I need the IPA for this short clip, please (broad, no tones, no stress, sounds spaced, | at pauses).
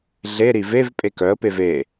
ɮ e ɾ i v e v pʼ e k œ ə̯ p e v e